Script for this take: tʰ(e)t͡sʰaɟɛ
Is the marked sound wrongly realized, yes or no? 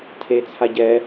no